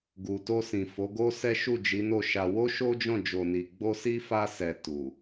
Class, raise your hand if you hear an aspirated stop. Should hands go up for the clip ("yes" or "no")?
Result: no